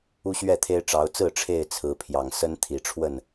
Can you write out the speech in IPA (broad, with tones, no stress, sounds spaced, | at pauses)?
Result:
u˦ ɕ ɥ ɛ˥˨ t̪ʰ e˦ ɪ̯ ʈ͡ʂ ɑ˨˦ ʊ̯ t͡s ɹ̩˥˨ ʈ͡ʂʰ e˥˨ ɪ̯ t͡sʰ ɹ̩˨˦ pʰ j ɑ˨˩ ŋ s ə˦ n t̪ʰ i˨˩ ʈ͡ʂʰ w ə˥˨ n